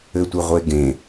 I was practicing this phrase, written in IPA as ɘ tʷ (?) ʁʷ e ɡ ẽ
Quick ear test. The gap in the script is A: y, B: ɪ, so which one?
B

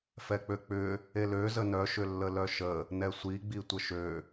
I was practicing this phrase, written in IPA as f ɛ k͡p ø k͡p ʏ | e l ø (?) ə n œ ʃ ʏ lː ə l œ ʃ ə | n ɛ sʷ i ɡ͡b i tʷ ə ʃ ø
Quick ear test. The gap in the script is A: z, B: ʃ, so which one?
A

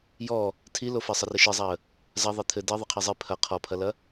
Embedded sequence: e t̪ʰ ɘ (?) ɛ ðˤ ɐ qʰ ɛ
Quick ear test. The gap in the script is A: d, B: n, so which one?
A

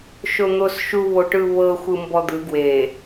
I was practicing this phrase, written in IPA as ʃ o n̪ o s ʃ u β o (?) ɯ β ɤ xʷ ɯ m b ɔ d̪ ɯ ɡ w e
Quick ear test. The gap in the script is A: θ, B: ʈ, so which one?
B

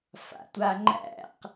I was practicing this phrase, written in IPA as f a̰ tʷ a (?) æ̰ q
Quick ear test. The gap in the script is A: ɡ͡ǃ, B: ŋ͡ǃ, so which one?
B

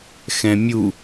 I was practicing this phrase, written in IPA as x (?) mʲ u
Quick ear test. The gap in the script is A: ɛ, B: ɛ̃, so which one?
B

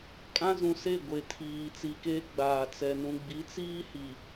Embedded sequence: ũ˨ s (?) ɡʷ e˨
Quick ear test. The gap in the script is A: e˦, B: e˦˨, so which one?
B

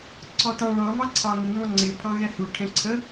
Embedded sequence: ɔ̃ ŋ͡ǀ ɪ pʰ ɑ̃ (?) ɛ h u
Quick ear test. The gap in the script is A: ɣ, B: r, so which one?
A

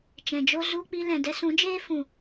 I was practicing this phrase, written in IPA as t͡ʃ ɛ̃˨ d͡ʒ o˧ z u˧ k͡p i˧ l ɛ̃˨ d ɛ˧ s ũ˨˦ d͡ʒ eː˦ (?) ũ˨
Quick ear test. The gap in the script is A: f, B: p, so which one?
A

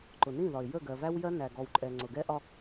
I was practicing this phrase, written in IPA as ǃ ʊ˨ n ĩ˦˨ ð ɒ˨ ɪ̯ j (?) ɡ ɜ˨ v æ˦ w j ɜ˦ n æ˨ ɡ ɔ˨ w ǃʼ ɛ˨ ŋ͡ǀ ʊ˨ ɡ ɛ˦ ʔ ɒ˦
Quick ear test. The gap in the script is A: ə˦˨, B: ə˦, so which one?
A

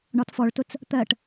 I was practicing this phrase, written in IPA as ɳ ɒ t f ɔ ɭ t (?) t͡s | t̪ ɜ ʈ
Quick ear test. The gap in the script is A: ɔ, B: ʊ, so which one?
B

